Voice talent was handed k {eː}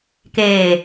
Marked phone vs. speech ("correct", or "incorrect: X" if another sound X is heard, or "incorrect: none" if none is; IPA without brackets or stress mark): correct